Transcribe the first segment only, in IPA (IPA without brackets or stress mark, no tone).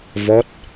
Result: v